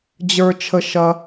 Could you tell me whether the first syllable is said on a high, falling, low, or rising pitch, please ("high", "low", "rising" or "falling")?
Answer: high